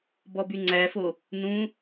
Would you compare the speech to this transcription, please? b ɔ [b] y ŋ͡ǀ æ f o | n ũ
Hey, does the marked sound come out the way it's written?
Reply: yes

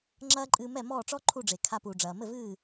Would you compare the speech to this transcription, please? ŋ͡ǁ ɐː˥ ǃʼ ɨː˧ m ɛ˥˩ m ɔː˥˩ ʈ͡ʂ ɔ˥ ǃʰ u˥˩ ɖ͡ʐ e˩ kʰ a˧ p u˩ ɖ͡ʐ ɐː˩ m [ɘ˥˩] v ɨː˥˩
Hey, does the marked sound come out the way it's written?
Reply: yes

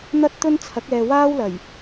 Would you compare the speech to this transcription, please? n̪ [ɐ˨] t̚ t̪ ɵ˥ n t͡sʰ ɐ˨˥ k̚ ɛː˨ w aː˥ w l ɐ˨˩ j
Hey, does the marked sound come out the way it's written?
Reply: no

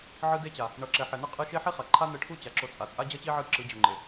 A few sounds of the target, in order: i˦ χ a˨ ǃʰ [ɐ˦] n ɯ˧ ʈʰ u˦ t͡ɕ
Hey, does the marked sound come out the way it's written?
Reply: no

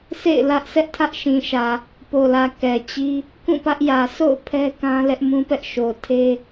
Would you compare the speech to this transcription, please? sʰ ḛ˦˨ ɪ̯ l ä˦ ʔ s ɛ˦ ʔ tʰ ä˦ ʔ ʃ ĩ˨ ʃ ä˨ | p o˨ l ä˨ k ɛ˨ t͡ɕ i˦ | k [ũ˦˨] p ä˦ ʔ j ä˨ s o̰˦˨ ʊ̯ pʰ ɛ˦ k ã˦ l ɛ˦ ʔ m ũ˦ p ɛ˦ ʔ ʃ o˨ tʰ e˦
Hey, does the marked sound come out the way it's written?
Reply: yes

